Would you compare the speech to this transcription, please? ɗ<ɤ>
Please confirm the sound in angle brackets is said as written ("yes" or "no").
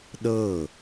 yes